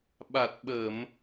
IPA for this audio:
ɓ a˨˩ t̚ ɓ ə˧˩˨ m

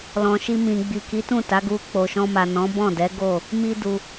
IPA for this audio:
l ɔ̃˨ ʃ i˧ m ĩ˨ ɡ͡b i˨ k i˨˦ t ũ˦˨ t a˨˦ ɡ u˧ k͡p o˨ ʃ ɔ̃˧ m a˨ n ɔ̃˨˦ b ɔ̃˦˨ d ɛ˨˦ ɡ o˦˨ | m i˦ d u˧

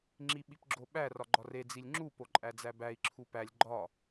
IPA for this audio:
ŋ͡ǁ i ɓ i p ɡ͡ǁ o ɓ æ r ɒ ɡ͡ǃ ɒ r e d͡z i lʲ ŋ͡ǁ u p o ǃʼ æ d͡z æ b æ i̯ ǁʰ u p æ lʲ ɡ͡ǃ ɒ

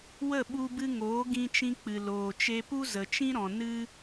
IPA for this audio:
w ə˦˨ ɓ u˧ b ɨ˧ ŋ oː˨˦ ɡ ĩ˧ t͡ʃ ĩ˧ k͡p ɨ˨ l oː˨ t͡ʃ e˧ p u˦ z ə˨ t͡ʃ ĩ˦ ɾ ɔ̃˨ n ɨ˧

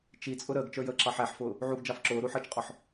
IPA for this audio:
t͡ʃ i t͡sʼ ʊ ɾ əː ɡ t͡ʃ ə˞ j əː ǁ ɑ ħ æ ħ f ʊː | ʕ u ɡ d͡ʒ ɑ f ǁ ʊː ɾ u ħ əː t͡ʃ qʼ ɔ ħ

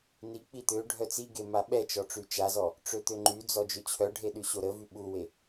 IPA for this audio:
n i k͡p i t̪ ø ɖʱ œ t͡s i ɡ e m a ɓ ɛ t͡ʃ ɔ ʈ͡ʂ y t͡ʃ a z ɔ | ʈ͡ʂ ø t̪ ø ŋ͡ǃ y d͡z ɔ d͡ʒ ø t͡ɕʰ œ ɖʱ e ɗ y ɕ o ɾ ə v y ɓ u w e

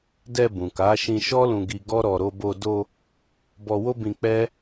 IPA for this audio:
d ɛ˧ b ũ˨ k a˨˦ ʃ ĩ˧ ʃ ɔ˦ l ũ˧ ɡ i˧ ɡ ɔ˦ ɾ ɔ˧ ɾ o˧ b o˧ d o˧ | b ɔ˧ w o˦ b ĩ˧ k͡p ɛ˦

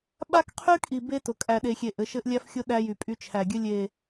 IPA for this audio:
ɓ a˦ k qʰ y˦ kʼ i˨ b e˦ t ʊ˨ kʼ æ˨ ɗ e˨ xʲ e˨ ʔ ɘ˨˦ ʃ ɘ˦ ʔ lʲ æ˦ f xʲ ʊ˦ ɗ æ˦ j y˨ pʼ y˦ t͡ʃʰ æ˨ ɡʲ ɘ˦ lʲ e˨

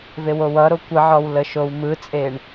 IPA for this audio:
v e w o w ʌ ɾ o kʷ ə ʕ ɔ w l ə ʃ o w m ɯ t͡sʼ e ɳ

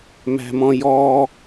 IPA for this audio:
m æ̤ m ɔ̃ j ɔ

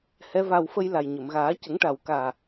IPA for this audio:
h ɛ˧˥ v a˧ w f ə˧ j l a˨˩ j ɲ ə˨˩˨ m ɣ aː˨˩˦ c ə˨˩˦ ŋ ʈ a˨˩ w k aː˨˩

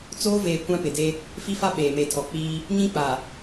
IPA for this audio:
t͡s oː˦ v eː˨ kʷ ã˦ p ɪ˨ d e˦ | f i˦ f a˦ ɓ eː˨ m e˨ tʰ ɔ˨ k͡p iː˦ | ɲ ĩ˦ k͡p a˨

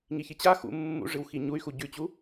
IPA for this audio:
ŋ i ç i t͡ɕ a x ṵ mː ṵ ʐ ɨ w x i ɲ u y̯ x u ɟ ʉ t͡ɕ u

